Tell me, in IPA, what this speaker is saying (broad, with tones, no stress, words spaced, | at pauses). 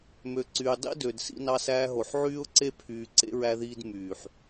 mø˨ǀyː˨ dˤḭ˦dø˨d sḭ˦nɑ˦sæː˦ɦo˨ħ ʕyː˦ʊ̯ǀe˦pʰyː˨ǀḛ˦ ɹæ˦ðiː˦d myː˨ħ